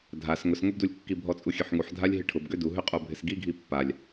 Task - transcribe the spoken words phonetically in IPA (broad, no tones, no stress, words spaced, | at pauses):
dʱas ŋʊsŋʊbdulʲkːi bʱɔt͡sʼuxʲøħŋuħ dʱalʲɦɪʈʰʊb ɡøduɦʏ qʼobʱɪsɡiɡʱi pːalʲ